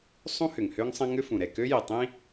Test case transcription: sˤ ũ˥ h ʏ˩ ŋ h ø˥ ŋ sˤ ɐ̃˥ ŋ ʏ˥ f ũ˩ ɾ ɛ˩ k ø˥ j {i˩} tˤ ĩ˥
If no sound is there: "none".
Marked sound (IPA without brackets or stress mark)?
i˩